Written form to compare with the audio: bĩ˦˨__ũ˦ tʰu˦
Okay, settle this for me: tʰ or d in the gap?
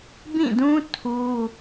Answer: d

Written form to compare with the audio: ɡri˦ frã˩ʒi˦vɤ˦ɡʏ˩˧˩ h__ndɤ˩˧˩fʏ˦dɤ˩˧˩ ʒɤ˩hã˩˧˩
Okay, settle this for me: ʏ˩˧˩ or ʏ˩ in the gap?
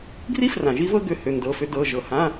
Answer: ʏ˩˧˩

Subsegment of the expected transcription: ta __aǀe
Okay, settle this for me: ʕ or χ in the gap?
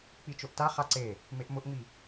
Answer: χ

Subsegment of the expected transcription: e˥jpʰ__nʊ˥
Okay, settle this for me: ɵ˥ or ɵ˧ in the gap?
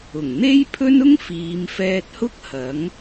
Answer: ɵ˥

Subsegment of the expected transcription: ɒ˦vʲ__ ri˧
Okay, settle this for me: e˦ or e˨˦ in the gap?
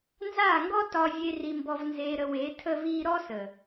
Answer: e˦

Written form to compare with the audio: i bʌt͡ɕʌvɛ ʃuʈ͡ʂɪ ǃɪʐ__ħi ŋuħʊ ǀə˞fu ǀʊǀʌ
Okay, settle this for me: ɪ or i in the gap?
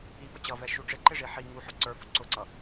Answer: i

